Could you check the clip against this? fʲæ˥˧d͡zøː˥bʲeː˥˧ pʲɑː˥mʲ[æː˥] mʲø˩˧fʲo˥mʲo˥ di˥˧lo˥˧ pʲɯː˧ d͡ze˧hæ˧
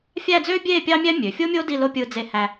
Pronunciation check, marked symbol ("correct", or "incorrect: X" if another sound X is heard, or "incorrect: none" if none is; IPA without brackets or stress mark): incorrect: æ˥